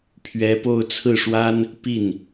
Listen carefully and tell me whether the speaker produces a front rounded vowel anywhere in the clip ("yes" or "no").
no